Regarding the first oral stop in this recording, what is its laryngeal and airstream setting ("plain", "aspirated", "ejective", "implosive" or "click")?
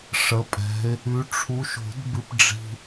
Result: ejective